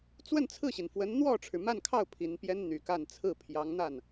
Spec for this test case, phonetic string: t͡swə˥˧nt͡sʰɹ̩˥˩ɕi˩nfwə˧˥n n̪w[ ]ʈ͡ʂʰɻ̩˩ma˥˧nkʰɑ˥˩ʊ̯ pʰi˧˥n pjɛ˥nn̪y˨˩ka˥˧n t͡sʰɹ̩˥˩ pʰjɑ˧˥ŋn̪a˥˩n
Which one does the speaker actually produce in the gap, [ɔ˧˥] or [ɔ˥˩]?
ɔ˥˩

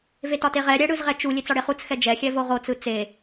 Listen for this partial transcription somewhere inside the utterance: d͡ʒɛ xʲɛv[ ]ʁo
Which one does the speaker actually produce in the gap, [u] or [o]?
o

